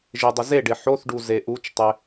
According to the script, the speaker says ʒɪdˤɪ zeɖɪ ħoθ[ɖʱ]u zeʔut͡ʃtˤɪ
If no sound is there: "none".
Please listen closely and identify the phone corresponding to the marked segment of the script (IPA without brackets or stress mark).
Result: ɖ